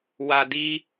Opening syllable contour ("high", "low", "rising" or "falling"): low